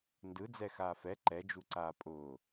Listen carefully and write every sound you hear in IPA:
n d ɯ d͡z ɛ x aː f ɛ ǃ ɛ d͡ʒ u ǀ aː pʼ ʊː

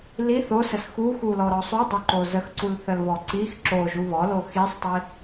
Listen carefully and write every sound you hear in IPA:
l i θ o s ə s x u x u l ɔ ɾ ɔ sˤ u dˤ o ǃ o z ə x ǀ u l θ ə l β ɔ ǀ i x ǁ o ʒ u β ɔ l o x i sˤ tˤ i

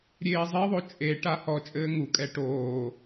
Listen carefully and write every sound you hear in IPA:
ɾʲ eː zˤ i ðˤ o t͡ʃʼ e ʈ a h ɔ t͡ʃʼ ɘː ŋ u kʼ ɛ ʈ oː

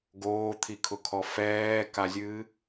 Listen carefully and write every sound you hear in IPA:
ɡ oː t̪ʰ i kʰ ʊ kʰ ɔ f ɛː k a zʲ ɨː

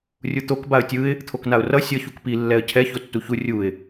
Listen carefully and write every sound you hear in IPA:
rʲ u t̪ o k b a ə̯ tʲ ɯ ɪ̯ | t̪ʰ o k n a ʊ̯ r ʌ sʲ ʌ ç u k p i lː ɛ ə̯ cʰ ɛ ç o tː u ç u rʲ u ɪ̯

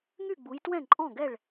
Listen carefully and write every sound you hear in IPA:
ŋ y˥˨ ɡ͡b u˨˦ j t w ɛ̃˥˨ ǃʼ ɔ̃˥˨ ɡ ɛ˥˨ ɭ

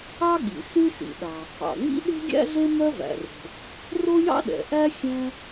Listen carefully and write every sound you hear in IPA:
ɑ˥ ɠ ḭ˩ s y˥ s ḭ˩ ɗ ɑ˩ | ɑ̰˩ ŋ͡m ḭ˥ ɗ e̤˥ ɡʲ æ̰˥ ɮ e˥ m œ˥ v æ̰˩ r e̤˩ | r o˥ j ɑ̰˥ ɗ ɛ̰˩ ʔ æ˥ xʲ ɛ̃˥

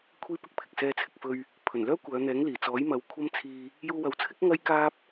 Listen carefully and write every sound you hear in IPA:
kʷʰ iː˥ p ɪ˥ k̚ pʰ ɪ˨ k̚ s ɛː˧ t͡sʰ ɪ˨ k̚ f ɵ˧ ɥ | pʰ ɵ˨˩ n l œː˥ kʷ œː˨˧ n̪ ɛː˨˥ ŋ l iː˨˩ t͡s ɔː˨˥ j m ɐ˨˧ w kʷʰ ɐ˥ m t͡sʰ iː˧ | j uː˧ w ɐ˨˥ w t͡sʰ ɪ˥ k̚ ŋ ɐ˥ j k aː˥ p̚

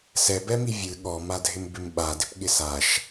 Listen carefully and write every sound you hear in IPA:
s ɛ b ɛ m i vʲ ɨ ɠ ɔ m a dʱ ɪ m b ɪ m ɓ a d ɪ p ɠ ɪ s a ʃ

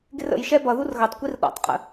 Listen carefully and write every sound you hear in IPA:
ɡ ɪ r ə̰ j ʃ ɛ b ʌ ð u r ɣ ʌ tˤ kʷ i r ɗ ɔ̰ tˤ qʼ ə̰

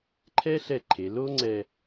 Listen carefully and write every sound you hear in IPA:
ǃʰ ɛ˥ ɬ ɛ˧ ǃʰ e˩˧ l o˥ ŋ͡ǀ ɛ˧

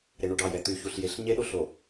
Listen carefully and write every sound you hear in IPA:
ɾ e ɳ u ɖ ɑ j ɛ t̪ y ç u ɬ j e ɬ ɲ e ɗ o ɬ o

